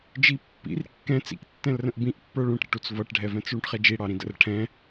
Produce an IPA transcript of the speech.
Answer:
d͡ʒi pːḭr kːɛ̃ t͡sḭk tːɛ̃lrə̃ʔbĩʔpːə˞ ɭũʈɾə̰ʈut͡s vʌʈɖʱɛvɛ̃t͡s ɭũʈχɛd͡ʒi ɽɑɾĩdə̰r ʈʰɛ̃

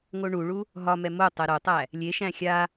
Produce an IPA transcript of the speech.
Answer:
ŋoɳuɭu | ɦɒmɛ mo tˤɛɾotˤæ | lʲeʃæ̃ xʲa

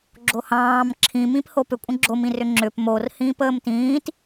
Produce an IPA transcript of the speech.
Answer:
ɡ͡ǁohɑ̃ːm ǁʰĩmĩp hopʏ kʷʼə̃ɡ͡ǁomĩrʏ ŋ͡ǁʏp mor hĩːpəːmtĩːt

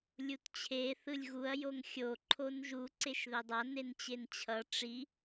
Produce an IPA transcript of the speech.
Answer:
lʲutt͡ɕʰe θɯlʲɣuɐ̯ joŋxʲo ǃʰonʒu ǀeʃðɛdˤa nent͡ɕent͡ɕʰʌ ʈ͡ʂi

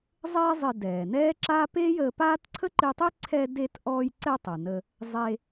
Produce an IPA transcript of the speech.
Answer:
zˤeː˥ zˤɪ˧dɛː˩nɛː˥ǁa˥ peː˥jəː˧paː˥t ǀʰə˥ǃɪː˧tˤe˥ ǀʰɛ˧de˧tʔɔː˧jǀɛ˧ tˤə˩nə˧ | zˤe˧

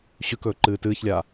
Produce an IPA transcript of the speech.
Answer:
ɕʉkɵː ǃɨːtɨːçlʲaː

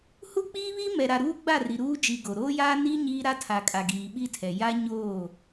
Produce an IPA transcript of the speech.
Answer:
hu˦k͡piː˦βiː˦ mɛ˨ɾa˨ ɾuː˦ɡ͡ba˦˨ ri˨ ɾuː˦d͡ʒi˨ ɡo˨ ɾoː˦jaː˦ ni˦ ɲiː˦ɾa˦tʰa˨kʼa˨ ɡiː˨ɓi˦tʰɛ˨ ja˦ɲoː˦˨

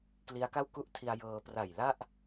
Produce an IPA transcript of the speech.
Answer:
kli˦˥a̯ka˥˩wku˥˩ʔtʰi˧a̯ jɤː˧ pra˨˩jla˥˩ʔ

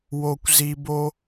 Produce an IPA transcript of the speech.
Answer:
wo˨kʷzi˨bo˧

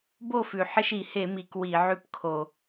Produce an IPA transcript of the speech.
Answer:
bo˥˨fʉ˨˩ħɪ˦ʃ i˧˩˧he˧˩˧mi˨˩k wi˧˩˧ʕʉ˦pkʰo˨˩

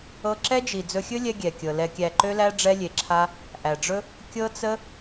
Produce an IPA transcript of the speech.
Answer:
ɤ˧ǁɛ˦d͡ʒi˨ d͡zɵ˧xʲɵ˦lʲɛ˧ ɡʲɛ˨kʲɤ˨ lɛ˨kʲæ˨ǃø˧læ˧ ɖ͡ʐɛ˧lʲe˨ǁʰa˧ | ʔæ˨ɖ͡ʐɵ˦ | kʲɤ˦t͡sə˦

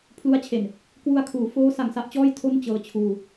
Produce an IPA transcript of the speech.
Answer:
pʰlu˦˥a̯t͡ɕʰe˨˩n | kwu˧a̯kʰuː˩˦ foː˦˥ sa˨˩ŋsa˥˩ʔt͡ɕɔː˥˩j tʰo˥˩n t͡ɕɤː˧t͡ɕʰuː˧

